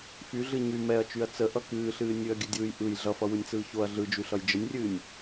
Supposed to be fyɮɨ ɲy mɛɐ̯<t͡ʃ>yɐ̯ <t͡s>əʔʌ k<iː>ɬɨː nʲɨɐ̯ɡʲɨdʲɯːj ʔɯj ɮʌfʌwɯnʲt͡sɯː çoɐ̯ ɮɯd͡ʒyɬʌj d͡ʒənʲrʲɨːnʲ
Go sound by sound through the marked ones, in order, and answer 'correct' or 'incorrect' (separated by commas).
correct, correct, incorrect